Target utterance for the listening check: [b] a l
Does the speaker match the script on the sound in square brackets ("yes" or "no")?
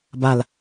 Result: yes